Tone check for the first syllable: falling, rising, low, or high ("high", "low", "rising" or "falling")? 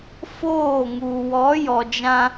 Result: falling